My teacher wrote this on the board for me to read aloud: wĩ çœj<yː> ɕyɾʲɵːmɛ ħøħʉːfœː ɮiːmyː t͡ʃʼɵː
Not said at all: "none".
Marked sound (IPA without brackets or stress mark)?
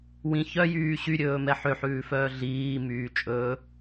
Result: yː